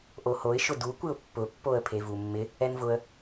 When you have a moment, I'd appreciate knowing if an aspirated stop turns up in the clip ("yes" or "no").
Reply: yes